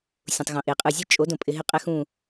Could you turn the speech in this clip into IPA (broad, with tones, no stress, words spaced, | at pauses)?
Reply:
sʲũ˨tˤɣõ˨ʔe˨qʼɯ˦˨ zʲɨ˦t͡ʃʼo˨˦d õ˨pʼɪ˧ɦɪ˦ qʼɛ˦xũ˦˨